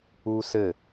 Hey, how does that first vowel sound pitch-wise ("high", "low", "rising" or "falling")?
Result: high